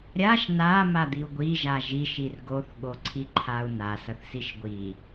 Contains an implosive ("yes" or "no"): yes